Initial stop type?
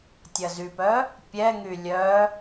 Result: plain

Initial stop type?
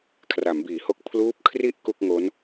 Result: aspirated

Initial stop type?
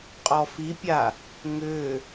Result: ejective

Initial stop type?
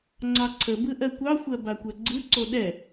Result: click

